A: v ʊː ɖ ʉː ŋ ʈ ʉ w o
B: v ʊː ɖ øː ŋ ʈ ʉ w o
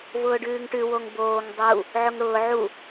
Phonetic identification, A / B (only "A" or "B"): A